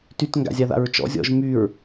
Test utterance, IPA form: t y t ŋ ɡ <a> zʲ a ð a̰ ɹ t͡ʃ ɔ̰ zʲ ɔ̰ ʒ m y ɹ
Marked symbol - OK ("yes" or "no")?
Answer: no